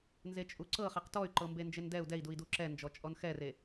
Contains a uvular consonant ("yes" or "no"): yes